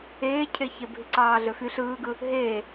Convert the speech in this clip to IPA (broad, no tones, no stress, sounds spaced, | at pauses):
eː cʰ e ç e bʱ i ǀ ɑː ɮ ø f y ɬ ɯː ɡ ɯ | ɦ eː